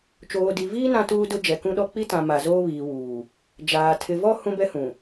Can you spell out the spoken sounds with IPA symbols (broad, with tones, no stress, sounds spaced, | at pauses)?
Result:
t͡ʃ oː˨ d i˨ v iː˦ n ã˦ t uː˦ d ʊ˦ d͡ʒ ɛ˨ k ũ˦ ɗ ɔ˦ k͡p i˦ t ã˨ m a˨ z oː˦ β iː˨ w uː˨ | d͡ʒ aː˨ tʰ ɪ˨ v ɔ˦ h ũ˦ b ɛ˦ h ũ˨